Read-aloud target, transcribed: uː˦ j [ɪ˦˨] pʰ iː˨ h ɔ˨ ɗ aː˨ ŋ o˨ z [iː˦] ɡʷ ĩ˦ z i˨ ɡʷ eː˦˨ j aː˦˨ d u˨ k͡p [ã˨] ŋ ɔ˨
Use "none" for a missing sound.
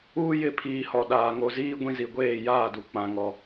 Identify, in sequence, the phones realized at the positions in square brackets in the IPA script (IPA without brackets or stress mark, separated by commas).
ɪ˦˨, iː˦, ã˨